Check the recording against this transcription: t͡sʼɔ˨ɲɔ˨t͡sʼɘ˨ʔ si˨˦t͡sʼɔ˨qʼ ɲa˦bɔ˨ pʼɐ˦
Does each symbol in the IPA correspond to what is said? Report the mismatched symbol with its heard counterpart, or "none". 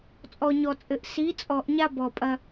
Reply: qʼ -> ʔ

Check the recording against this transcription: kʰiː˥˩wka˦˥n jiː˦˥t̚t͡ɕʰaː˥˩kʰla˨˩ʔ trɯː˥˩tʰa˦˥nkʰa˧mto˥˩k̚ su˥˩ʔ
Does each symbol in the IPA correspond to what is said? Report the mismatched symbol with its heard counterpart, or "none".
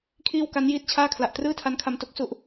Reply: none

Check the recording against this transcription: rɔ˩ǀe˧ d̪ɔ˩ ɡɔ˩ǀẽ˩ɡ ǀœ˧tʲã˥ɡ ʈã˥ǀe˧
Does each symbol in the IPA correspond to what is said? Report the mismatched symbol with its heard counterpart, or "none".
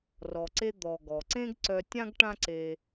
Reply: ẽ˩ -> ẽ˥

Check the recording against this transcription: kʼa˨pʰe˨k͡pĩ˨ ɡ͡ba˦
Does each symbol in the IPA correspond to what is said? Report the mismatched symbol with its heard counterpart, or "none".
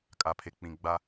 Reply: none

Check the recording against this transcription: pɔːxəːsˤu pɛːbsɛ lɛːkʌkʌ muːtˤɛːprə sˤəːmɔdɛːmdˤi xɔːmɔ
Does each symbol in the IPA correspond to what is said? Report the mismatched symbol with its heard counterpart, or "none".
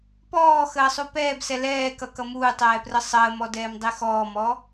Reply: none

